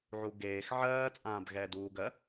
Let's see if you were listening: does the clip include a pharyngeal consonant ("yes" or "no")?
yes